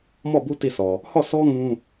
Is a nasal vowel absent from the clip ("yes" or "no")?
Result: no